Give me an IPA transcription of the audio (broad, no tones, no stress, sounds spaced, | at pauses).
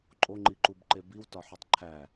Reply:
ǃʼ o ŋ͡ǃ i ǃ u b ǃ e b i w t ɒ ħ u tˤ ǃʰ æ